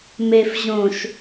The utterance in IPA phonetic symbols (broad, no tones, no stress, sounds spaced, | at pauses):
m e f ʑ õ ʃ